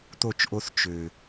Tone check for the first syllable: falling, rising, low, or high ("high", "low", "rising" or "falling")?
falling